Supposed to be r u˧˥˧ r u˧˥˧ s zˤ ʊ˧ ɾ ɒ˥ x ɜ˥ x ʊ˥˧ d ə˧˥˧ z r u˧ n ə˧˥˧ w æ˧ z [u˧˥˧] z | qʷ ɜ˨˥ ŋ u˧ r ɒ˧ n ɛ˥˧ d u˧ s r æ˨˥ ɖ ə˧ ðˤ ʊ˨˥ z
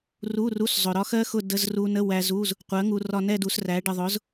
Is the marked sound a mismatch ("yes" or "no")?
no